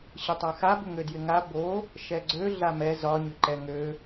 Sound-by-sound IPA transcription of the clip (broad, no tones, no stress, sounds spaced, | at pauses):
ɕ ɪ tˤ a x a b ʏ ŋ ø d j ɪ ŋ a b o | ʃ ɛ ɡ͡ǀ ø ɮ a m ɛ z ɒ ɲ ʏ ǃ ɛ ŋ ø